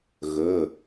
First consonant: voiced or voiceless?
voiced